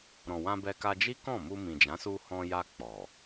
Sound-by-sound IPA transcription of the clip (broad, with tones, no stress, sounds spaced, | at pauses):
ɾ ɔ̃˨ w ã˧ b ɛ˧ k a˧ d͡ʒ i˦ k ɔ̃˦˨ m u˧ m ĩ˨ d͡ʒ ã˨˦ s u˧ h ɔ̃˧ j a˧ k͡p ɔ˨